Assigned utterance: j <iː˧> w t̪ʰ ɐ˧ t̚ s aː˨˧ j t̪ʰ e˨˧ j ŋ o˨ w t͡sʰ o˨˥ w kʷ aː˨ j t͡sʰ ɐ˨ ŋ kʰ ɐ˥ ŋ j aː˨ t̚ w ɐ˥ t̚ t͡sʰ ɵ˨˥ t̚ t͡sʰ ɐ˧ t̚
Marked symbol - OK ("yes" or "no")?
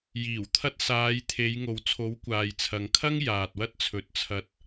no